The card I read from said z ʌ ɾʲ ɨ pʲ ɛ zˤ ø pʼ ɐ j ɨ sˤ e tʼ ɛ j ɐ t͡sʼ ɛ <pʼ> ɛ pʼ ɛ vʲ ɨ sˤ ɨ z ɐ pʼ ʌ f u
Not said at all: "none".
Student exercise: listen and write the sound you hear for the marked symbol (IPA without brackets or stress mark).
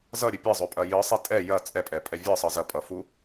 pʼ